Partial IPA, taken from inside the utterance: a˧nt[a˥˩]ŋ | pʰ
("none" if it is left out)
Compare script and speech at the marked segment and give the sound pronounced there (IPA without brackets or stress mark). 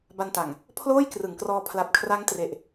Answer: a˨˩